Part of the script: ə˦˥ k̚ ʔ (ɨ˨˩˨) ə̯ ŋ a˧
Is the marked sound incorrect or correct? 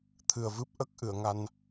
correct